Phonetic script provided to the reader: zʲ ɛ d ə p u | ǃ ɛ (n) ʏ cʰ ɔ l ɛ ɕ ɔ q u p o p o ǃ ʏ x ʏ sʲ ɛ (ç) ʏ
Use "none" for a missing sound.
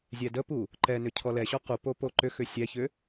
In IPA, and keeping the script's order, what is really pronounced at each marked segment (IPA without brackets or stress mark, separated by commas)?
n, ç